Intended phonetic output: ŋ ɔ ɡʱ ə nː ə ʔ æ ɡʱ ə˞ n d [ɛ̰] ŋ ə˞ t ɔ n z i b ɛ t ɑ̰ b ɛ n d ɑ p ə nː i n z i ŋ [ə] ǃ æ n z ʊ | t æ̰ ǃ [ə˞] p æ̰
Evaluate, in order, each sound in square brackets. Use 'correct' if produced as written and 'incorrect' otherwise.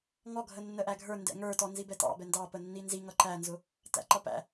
correct, incorrect: ʌ, incorrect: ʌ

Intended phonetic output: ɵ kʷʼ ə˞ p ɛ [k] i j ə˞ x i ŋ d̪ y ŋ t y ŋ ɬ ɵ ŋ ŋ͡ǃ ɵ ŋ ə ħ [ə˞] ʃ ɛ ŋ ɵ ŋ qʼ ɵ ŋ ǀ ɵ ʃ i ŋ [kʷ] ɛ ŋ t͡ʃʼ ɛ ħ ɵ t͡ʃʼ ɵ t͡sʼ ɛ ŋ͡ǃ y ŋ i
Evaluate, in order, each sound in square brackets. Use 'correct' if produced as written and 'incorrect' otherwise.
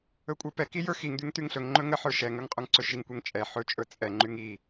correct, correct, correct

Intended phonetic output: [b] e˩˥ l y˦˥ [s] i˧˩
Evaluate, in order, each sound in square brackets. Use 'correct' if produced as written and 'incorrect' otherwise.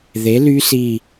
incorrect: ð, correct

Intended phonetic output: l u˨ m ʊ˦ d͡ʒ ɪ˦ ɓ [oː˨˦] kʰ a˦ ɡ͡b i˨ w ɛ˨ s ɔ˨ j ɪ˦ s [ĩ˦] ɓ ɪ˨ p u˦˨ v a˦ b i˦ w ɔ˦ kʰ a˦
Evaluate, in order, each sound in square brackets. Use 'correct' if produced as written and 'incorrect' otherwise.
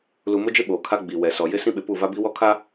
incorrect: oː˨, correct

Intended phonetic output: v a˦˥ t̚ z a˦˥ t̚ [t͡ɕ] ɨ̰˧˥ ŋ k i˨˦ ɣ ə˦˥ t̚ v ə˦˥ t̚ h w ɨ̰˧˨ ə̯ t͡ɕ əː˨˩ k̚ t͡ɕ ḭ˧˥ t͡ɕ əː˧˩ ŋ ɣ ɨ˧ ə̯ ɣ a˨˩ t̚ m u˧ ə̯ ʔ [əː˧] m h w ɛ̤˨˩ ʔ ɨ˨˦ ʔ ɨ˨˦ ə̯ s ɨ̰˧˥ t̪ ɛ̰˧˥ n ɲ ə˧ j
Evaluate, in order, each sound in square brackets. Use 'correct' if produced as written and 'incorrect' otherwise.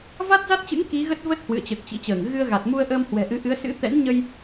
correct, correct

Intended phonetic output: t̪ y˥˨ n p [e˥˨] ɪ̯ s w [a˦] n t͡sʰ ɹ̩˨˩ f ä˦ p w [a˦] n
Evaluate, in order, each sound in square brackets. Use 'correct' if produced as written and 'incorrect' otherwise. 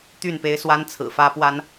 incorrect: e˦, correct, correct

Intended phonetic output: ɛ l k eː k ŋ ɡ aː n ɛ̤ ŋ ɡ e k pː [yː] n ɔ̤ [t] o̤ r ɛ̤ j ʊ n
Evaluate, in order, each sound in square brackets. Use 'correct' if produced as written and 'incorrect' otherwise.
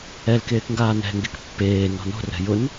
incorrect: eː, incorrect: n

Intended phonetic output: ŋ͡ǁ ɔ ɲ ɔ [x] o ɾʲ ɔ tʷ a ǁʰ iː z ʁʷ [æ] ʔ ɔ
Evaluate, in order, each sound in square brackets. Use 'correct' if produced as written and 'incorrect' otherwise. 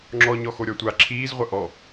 correct, incorrect: ɐ

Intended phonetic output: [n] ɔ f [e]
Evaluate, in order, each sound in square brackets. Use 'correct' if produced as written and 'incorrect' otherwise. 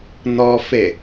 correct, correct

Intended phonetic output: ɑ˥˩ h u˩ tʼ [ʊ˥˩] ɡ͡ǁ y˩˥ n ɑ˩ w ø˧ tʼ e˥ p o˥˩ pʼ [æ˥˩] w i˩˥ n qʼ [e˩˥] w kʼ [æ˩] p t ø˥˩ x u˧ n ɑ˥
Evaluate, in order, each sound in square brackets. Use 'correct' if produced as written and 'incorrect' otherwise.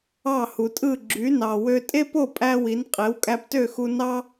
incorrect: ɯ˥˩, incorrect: æ˧, correct, incorrect: æ˧

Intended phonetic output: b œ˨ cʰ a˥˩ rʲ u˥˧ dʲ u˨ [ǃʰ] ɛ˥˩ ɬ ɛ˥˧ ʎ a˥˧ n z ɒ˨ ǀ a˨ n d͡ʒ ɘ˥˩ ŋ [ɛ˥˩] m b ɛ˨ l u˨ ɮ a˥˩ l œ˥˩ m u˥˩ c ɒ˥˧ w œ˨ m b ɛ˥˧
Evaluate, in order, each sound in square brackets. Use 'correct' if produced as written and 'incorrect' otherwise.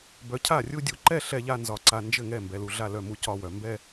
incorrect: ǃ, correct

